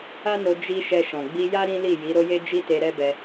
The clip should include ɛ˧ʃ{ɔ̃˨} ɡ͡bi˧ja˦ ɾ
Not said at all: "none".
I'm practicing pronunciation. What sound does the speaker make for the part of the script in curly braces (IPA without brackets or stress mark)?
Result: ɔ̃˨